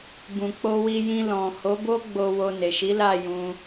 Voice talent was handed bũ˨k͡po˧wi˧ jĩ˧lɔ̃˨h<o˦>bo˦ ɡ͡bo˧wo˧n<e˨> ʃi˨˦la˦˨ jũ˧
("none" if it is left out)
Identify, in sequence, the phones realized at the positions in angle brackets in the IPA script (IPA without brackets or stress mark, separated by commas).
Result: o˨˦, e˨